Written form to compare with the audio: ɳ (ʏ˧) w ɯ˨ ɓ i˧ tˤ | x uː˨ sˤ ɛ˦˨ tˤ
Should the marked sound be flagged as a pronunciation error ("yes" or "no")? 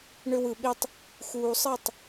no